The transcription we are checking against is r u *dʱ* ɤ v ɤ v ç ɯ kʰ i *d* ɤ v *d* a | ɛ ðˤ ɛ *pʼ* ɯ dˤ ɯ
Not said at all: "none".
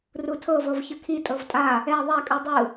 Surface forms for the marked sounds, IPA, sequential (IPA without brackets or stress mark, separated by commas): tʰ, tʼ, tʼ, kʼ